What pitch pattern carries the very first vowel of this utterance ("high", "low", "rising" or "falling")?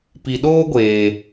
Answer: low